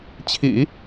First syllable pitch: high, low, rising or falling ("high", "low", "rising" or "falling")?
low